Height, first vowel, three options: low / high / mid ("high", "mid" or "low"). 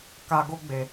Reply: low